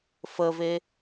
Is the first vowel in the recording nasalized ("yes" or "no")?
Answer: no